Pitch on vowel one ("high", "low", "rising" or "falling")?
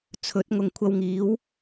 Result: rising